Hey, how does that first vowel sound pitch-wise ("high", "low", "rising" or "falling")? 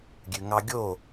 low